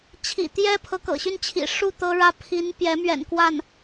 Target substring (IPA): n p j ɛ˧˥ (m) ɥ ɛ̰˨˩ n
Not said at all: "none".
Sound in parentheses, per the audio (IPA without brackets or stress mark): m